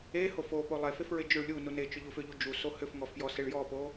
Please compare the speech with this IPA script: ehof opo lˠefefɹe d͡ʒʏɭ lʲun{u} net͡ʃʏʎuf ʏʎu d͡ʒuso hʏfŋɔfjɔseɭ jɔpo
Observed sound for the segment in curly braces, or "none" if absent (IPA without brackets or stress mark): u